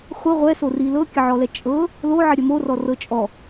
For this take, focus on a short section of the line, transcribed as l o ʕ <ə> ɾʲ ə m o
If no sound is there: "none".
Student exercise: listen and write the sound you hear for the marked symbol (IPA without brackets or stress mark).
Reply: ə